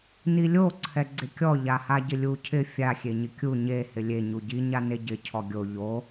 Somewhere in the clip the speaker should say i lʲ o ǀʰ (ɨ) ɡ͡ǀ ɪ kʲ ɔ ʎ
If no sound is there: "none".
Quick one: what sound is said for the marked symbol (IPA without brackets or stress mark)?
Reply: ɛ